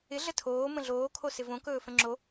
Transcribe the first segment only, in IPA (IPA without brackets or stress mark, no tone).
ɪ